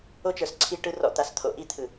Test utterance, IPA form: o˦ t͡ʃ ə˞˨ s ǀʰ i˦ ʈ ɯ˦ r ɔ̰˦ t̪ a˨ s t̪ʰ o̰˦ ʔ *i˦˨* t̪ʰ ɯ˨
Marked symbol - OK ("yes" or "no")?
no